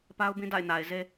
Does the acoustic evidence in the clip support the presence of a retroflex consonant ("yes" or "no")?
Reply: no